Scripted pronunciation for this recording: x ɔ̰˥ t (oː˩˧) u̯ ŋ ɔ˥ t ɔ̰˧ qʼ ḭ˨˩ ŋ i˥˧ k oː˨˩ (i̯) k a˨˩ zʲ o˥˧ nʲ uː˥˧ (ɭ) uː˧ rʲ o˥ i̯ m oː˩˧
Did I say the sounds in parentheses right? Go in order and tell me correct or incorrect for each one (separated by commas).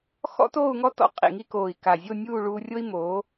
incorrect, correct, correct